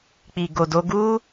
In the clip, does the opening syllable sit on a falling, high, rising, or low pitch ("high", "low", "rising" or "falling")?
low